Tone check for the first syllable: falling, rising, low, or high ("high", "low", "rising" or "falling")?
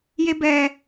high